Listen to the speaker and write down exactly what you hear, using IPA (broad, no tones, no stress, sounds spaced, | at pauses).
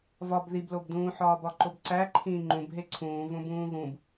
v ɒ b ð i b l o b d ũː ħ ɒː b ɒ ǃ o b ǀ æ ǃʰ ĩː ŋ͡ǃ ũ b ɦ e ǀʰ ũː v õ b ũː ɣ ũ b